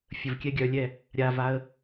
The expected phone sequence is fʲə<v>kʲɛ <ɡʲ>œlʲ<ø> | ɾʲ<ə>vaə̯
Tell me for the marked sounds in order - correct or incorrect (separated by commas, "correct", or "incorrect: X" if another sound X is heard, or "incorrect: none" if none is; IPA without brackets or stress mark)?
correct, correct, incorrect: ɛ, incorrect: a